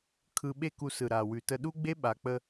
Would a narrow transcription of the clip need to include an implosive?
yes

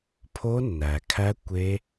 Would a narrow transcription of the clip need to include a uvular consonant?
no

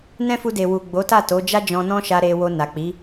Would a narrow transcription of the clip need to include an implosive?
no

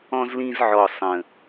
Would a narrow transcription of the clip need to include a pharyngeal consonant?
yes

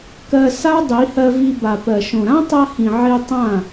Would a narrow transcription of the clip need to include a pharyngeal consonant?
yes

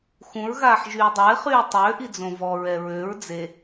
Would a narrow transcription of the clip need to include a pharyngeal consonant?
yes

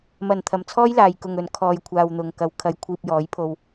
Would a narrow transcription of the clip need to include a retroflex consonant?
no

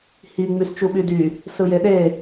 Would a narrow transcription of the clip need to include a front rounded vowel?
yes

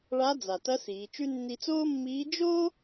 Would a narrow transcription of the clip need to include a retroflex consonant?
yes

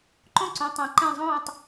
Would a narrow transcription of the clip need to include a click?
yes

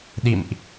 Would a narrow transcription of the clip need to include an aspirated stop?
no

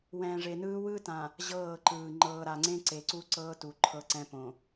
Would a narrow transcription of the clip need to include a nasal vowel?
yes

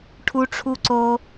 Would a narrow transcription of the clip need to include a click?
yes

